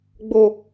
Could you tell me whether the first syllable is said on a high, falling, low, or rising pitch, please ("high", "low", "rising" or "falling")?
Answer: low